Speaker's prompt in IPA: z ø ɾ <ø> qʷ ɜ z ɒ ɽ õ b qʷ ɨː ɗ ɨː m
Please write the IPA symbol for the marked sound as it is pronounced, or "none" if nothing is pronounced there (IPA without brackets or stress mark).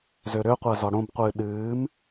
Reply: ø